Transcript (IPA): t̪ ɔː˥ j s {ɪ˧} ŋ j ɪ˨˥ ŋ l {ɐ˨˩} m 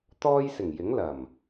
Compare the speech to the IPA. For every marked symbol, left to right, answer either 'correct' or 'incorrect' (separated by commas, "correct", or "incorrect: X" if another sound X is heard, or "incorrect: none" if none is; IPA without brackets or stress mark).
incorrect: ɪ˨˩, correct